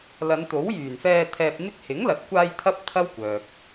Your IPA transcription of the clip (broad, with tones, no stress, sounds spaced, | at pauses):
l ɐ˨˧ n t̪ o˨˥ w j yː˨˩ n f ɛː˧ t̪ʰ ɛː˧ p̚ n̪ ɪ˥ k̚ h ɪ˨˥ ŋ l ɐ˨ t̚ kʷ aː˧ j t̪ʰ ɐ˥ p̚ t̪ʰ ɐ˥ w kʷ œː˨ k̚